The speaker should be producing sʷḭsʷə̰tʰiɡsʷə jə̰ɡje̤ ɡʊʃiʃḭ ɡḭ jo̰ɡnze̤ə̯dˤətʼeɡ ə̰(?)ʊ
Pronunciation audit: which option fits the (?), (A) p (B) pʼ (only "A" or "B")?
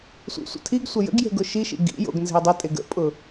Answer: B